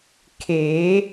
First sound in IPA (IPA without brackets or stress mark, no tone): kʰ